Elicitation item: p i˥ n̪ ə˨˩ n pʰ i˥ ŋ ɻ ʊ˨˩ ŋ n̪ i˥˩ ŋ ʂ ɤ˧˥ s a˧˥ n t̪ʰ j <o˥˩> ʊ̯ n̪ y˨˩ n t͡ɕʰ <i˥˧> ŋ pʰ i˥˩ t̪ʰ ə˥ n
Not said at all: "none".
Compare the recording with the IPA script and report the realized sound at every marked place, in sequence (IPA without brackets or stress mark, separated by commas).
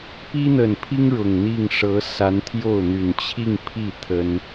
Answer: o˥˩, i˥˧